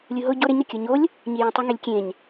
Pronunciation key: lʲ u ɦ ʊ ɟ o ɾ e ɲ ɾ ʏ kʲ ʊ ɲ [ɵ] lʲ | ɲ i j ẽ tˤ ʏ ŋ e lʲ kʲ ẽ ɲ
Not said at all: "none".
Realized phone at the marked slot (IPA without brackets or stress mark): o